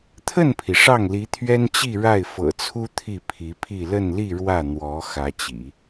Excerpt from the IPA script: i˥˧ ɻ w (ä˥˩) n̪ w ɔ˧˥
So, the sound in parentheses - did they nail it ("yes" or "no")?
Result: yes